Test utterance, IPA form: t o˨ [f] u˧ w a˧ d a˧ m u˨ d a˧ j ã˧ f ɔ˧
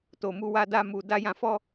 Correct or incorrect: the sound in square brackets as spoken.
incorrect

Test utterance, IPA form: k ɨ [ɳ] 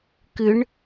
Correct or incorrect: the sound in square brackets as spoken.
correct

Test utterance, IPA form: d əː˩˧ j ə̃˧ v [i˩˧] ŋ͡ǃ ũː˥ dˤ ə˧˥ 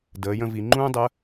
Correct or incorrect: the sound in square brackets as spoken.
correct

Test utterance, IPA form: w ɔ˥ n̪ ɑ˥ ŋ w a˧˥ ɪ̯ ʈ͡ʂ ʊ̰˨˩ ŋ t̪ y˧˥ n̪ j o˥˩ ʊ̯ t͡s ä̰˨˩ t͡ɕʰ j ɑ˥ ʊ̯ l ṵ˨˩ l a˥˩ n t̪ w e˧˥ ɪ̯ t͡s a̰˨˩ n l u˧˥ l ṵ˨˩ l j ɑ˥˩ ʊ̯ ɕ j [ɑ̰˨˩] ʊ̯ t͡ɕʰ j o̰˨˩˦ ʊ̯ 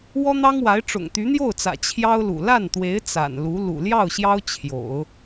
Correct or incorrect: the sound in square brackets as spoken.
incorrect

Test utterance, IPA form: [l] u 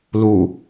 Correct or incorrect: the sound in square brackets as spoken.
correct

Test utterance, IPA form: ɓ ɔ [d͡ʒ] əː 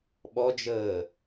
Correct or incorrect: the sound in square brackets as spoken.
correct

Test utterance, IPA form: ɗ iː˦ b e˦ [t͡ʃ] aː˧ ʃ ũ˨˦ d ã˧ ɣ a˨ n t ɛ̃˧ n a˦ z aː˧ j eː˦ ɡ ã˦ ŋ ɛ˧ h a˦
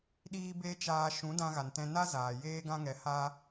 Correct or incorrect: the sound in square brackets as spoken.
correct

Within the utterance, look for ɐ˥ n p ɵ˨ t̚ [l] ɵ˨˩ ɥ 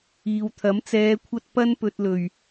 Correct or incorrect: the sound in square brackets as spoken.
correct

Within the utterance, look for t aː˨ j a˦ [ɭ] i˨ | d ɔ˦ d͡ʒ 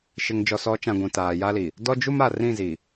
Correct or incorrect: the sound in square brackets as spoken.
incorrect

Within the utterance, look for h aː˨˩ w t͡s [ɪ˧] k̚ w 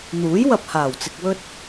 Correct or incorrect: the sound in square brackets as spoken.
correct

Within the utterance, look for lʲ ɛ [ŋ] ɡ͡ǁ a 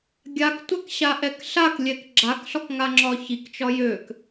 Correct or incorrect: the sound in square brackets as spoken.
incorrect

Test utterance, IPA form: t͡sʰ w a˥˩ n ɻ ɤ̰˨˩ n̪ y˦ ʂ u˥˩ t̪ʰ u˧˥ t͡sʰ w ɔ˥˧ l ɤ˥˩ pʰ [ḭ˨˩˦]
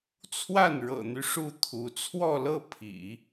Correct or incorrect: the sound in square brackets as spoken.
correct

